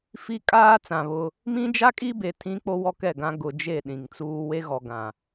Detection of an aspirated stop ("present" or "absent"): present